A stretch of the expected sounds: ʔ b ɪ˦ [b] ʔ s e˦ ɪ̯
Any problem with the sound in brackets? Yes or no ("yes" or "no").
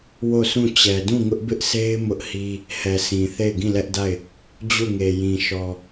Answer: yes